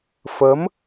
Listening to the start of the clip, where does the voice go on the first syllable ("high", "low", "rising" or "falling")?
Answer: rising